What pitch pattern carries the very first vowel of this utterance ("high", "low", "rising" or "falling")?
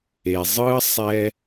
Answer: low